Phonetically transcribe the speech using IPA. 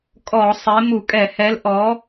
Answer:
kʼɔ˧˩˧ sˤe˨˥ mu˧˩˧kʼɛ˧˩˧hɛ˨˥l ʔɔ˨˥

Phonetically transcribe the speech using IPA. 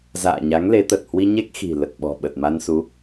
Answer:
za̰ː˧˨ɲa˨˦ŋ le˨˦t̪ə˨˩t̚ hwi˧ ɲe˦˥k̚ xi̤˨˩lə˨˩t̚ɓɔ̤˨˩ɓə˨˩t̚ ma˧n su˨˦

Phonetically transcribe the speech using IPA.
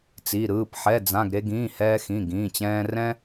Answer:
t͡si˩˧˩ɾɯː˩˧˩p ħɛ˩˧˩d͡zã˩˧˩ɡ ɾe˧ɡĩː˩˧˩ hɛː˧xĩ˩˧˩ɡĩː˩˧˩t͡ɕɛ̃ː˧ rɛ̃˧

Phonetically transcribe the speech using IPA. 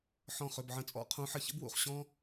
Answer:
ħɔ̃˧˩χʏ˩˧˩bʕə̃˨˦t͡sʼɔ̰˨˦ qʰũ˨˦ħə˧˩ çə̰˥bwṵ˧˩χ ɕɔ̃ː˥

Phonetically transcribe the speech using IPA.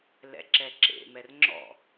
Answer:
lɛ̰ǁɛǁḛ mɛrŋ͡ǁɔ̰

